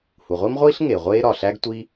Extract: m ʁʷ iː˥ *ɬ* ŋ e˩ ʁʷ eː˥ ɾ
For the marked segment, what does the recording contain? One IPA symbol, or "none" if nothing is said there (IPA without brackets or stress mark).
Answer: ɬ